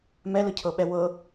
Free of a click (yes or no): yes